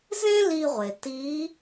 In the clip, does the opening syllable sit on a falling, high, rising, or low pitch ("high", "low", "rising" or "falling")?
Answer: high